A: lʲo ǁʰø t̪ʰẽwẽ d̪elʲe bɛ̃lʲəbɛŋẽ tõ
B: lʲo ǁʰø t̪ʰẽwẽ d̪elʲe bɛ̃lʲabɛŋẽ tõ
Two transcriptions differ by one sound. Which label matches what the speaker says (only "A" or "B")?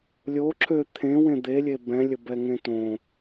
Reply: A